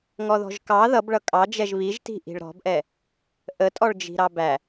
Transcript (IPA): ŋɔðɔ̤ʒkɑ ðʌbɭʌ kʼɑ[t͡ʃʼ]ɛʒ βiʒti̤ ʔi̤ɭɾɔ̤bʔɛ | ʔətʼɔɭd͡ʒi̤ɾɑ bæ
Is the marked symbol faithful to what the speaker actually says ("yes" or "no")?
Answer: no